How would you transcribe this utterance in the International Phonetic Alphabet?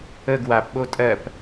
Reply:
ə ɡ w a p ɓ o tʼ ɜ p

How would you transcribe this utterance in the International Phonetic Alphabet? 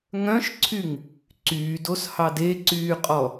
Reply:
ŋ œ̃ ʃ ǀʰ y ŋ | ǀ yː d o s h ɑ d e ǀ yː qʼ ɔ

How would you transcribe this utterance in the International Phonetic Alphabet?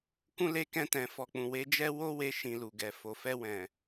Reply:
k ũ˦ l e˦ k ɛ̃˧ t ɛ̃˨ f ɔ˨ k͡p ũ˨ w e˨˦ d͡ʒ ɛ˦ w o˦ w e˧ ʃ ĩ˨ l u˨ ɡ ɛ˨ f o˨ f ɛ˧ w ɛ̃˨

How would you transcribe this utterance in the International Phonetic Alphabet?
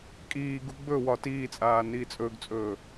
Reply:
kʼ iː ɡ u ɡ͡b ɵ w ɒ t iː t͡sʼ aː n iː t͡sʼ ɵː ɡ t͡sʼ ɵː

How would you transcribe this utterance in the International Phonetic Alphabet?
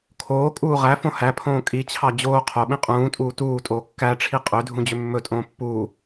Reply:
kʰ oː kʼ uː ʁ æ f õ h æ pʰ õː kʼ i t͡ɕʰ ɑ d͡ʑ oː qʰ o ɓ ĩ qʼ ũː tʼ uː t uː tʼ oː kː æ ʈ͡ʂʰ i qʼ ø dʱ ũ d͡ʑ ø mː ɵ tʼ õː pː uː

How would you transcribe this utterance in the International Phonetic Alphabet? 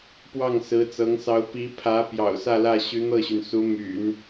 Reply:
p w ɑ˥˩ ŋ s ɹ̩˧˥ t͡s ɤ˧˥ ŋ s ɑ˧˥ ʊ̯ p i˧˥ pʰ ä˧˥ p j ɑ̰˨˩ ʊ̯ s ä˥˧ l ä˥˩ ɕ y˧˥ n̪ ɤ˥˩ ɕ y˩ n s u˧˥ m y̰˨˩˦ n

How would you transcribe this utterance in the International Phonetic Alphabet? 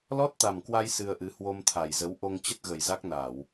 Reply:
l ɔ˦˥ t̚ t̪ a˨˩ m k w a˧ j s ɨ˧ ə̯ ʔ ɨ˨˦ h w o˧ m t̪ʰ a˨˩ j z ə˨˦ w ʔ o˧ ŋ t͡ɕ ə˦˥ t̚ ɣ ə˨˩ j z a˦˥ k̚ n a˧˩˨ w

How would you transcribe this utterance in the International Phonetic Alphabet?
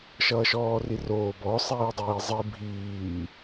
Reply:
ʃ ʌː ʃ ɔː r i r oː b ɔ sˤ iː dˤ iː zˤ i bʱ iː

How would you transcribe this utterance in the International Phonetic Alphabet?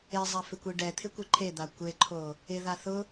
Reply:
e zˤ a f ɪ kʷ i ɖ ɛ t̪ʰ ɪ kʷ ɪ ǃʰ e d̪ a kʷ e ǃʰ o | ɪ ð a θ ʊ

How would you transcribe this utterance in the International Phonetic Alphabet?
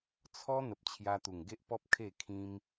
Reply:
t͡sʰ ɔ˦ n̪ ə˨ p̚ t͡ɕʰ j a˧ t̪ u˨˩ ŋ ɡ e˦ ʔ p ɔ˦ p̚ kʰ e˥˧ kʰ ĩ˦ m

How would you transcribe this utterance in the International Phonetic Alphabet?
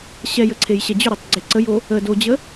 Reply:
ɕ ɛ j ə ǀʰ e j ɕ ɛ d͡ʑ ʏ ɾ o tˤ ɡ͡ǀ e ǀ ə j o | ə d o d͡ʑ ə

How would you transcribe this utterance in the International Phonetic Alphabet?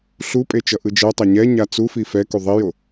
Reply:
ɬ u pʼ e t͡ʃ ʌ ʔ ɯ d͡ʒ ɛ tˤ a ɲ ɛ ɲ a t͡s u f i f ɛ k u ðˤ i j o

